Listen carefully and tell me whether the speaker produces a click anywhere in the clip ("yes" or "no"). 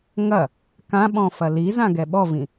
no